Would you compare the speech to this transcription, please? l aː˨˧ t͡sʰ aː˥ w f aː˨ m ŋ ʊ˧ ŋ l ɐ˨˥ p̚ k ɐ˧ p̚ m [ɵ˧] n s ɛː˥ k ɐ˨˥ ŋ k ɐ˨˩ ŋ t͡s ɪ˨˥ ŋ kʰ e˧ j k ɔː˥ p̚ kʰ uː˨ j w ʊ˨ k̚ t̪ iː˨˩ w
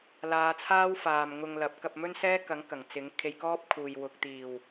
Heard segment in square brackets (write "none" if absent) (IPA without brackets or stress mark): ɵ˥